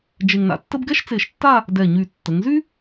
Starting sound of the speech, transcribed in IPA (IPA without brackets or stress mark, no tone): d͡ʒ